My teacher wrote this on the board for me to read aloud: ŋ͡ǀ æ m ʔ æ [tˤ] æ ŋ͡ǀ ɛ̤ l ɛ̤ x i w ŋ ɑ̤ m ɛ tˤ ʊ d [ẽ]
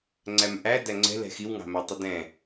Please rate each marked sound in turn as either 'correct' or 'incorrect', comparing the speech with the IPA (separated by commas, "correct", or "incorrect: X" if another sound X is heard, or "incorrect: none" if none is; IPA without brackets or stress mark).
incorrect: d, incorrect: ɛ̃